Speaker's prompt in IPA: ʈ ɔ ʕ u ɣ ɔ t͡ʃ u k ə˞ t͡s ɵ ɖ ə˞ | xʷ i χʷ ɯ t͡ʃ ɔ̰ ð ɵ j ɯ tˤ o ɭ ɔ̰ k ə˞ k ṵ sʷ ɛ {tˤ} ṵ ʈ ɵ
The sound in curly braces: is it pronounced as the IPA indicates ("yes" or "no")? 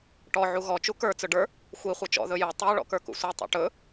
yes